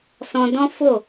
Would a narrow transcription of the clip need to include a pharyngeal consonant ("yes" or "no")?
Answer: no